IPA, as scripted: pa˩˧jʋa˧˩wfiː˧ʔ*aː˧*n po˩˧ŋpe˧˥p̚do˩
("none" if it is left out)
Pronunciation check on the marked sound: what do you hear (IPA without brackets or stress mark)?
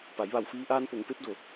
aː˧